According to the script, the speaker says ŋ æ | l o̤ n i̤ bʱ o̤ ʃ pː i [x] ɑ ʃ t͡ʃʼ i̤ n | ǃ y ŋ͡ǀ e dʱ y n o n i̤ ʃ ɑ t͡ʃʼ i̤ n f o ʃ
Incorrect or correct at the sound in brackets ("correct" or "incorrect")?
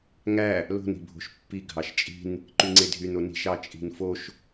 incorrect